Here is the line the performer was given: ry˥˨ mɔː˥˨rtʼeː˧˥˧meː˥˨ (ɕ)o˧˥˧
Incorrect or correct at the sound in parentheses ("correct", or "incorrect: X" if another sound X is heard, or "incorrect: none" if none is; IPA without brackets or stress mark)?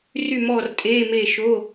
incorrect: ʃ